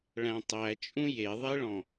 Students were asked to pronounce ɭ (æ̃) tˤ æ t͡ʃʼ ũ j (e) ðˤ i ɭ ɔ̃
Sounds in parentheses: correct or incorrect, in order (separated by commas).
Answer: correct, correct